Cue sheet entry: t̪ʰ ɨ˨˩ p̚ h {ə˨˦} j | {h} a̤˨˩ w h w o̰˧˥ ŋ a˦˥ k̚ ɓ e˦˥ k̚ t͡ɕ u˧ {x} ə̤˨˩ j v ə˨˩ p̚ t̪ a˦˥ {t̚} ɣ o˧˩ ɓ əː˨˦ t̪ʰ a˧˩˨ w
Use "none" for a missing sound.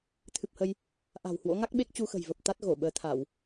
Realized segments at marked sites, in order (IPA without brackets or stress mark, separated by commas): ə˧, ʔ, x, t̚